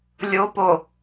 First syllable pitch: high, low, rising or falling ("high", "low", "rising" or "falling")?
low